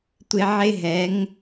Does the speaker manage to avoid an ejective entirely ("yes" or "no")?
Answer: yes